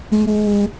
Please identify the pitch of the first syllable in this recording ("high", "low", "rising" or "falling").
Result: high